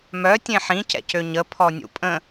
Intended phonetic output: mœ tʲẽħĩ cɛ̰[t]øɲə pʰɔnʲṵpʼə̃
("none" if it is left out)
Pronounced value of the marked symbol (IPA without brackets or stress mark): c